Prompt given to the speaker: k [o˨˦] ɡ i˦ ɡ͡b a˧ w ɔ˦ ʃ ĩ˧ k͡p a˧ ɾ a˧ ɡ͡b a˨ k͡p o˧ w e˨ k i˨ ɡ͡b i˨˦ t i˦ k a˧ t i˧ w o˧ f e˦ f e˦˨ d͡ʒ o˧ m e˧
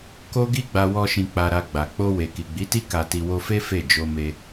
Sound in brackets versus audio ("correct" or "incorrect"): incorrect